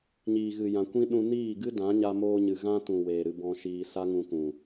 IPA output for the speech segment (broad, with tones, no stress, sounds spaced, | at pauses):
ɲ iː˨ ɣ ɨ˨ j ã˨ kʷ ĩ˦ ɗ ũ˧ n iː˦˨ ɡ ɨ˦ d ã˨˦ ɲ a˧ m oː˧ ɲ ɨ˨ ɣ ã˦ t ũ˨ w eː˨ ɾ ɨ˧ b ɔ̃˧ ʃ iː˧ s a˦ ŋ ũ˧ k ũ˨